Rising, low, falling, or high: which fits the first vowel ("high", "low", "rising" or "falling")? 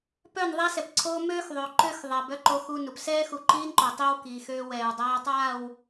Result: falling